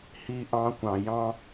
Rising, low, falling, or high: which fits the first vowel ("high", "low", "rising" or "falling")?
high